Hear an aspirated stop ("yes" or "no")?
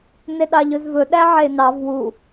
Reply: no